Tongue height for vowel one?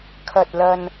low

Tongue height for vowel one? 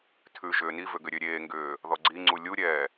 high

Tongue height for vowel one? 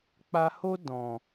low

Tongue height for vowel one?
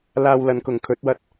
low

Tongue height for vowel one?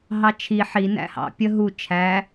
low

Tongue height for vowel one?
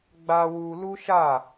low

